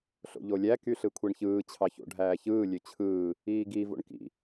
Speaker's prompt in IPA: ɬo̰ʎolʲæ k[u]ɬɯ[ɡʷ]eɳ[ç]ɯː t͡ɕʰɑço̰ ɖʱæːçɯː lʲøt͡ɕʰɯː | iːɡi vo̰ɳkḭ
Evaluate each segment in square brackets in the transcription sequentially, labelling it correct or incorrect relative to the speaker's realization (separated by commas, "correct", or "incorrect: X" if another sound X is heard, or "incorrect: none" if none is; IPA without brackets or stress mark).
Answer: incorrect: y, incorrect: kʷʰ, correct